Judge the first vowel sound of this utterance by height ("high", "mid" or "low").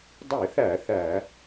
high